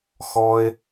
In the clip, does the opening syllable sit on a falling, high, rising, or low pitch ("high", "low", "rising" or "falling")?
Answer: high